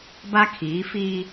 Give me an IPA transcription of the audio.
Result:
b a˦ kʰ iː˨˦ f i˦

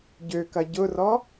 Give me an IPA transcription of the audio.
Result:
ɟ ø k ɐ ɟ ʊ r ɔ

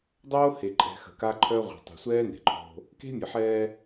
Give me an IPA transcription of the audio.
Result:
dˤ oː˦ h e˨ ǃʼ ɛ̤˨ x ə̤˨ k a˦ ǃʰ œ˦ ʁʷ ɛ̤˨ tˤ e̤˨ sʷ ɛː˦ n e̤˨ ǃʰ o̤˦ | k e̤˦ mʲ ə˨ ħ ɛː˦

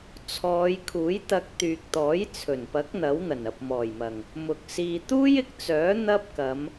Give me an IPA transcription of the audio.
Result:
t͡sʰ ɔː˨˧ j kʰ uː˨˥ j t̪ ɐ˧ k̚ t̪ yː˨ k̚ t̪ ɔː˨˥ j t͡sʰ ɵ˨˩ n p ɐ˨˥ k̚ n̪ ɐ˨˥ w n̪ ɐ˨˩ n ɐ˨ p̚ m ɔː˨˩ j m ɐ˨˩ ŋ | m ʊ˨ k̚ s iː˧ t̪ uː˥ j ɪ˨˥ k̚ t͡s œː˨˥ n̪ ɐ˥ p̚ k ɐ˨˧ m

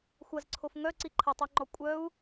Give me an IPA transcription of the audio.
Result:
xʷ ɐ z ǀʰ o f ŋ œ ǀ i ǃʰ ə tˤ o ŋ͡ǃ ɔ kʷʼ œ u̯

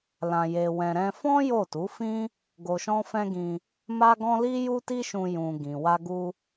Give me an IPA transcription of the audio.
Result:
l ã˧ j e˧ w ɛ̃˧ ɾ ɛ̃˧ f ɔ̃˦ j o˦˨ t u˨˦ f ĩ˦ | ɡ o˧ ʃ ɔ̃˦ f ɛ̃˦ ɡ ĩ˧ | m a˦ ɡ ɔ̃˦ l i˦ j u˦ t i˦ ʃ ũ˧ j ũ˧ ɡ ĩ˨ w a˧ ɡ u˧

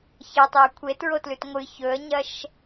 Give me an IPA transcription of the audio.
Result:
ç ɐ tˤ e ə̯ kʷʰ e t ɹ o t l ʉ t ŋʷ ɨ ç ɵ ə̯ ɲ ɐ ʃ

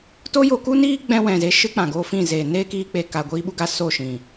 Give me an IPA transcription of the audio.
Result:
t o˦ j o˧ k u˦ n iː˦ ɡ͡b ɛ̃˦ w ɛ̃˨ z e˧ ʃ ɨ˦ k͡p ã˨ ɡ oː˦ f ĩ˦˨ z eː˨ n eː˦ k iː˧ k͡p e˨ k a˨ ɡʷ iː˧ ɓ u˧ ɡ a˧ s o˦˨ ʃ ĩ˨

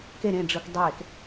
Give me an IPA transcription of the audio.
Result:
k e ɾ ẽ ɖ͡ʐ ɯ k dˤ eː k

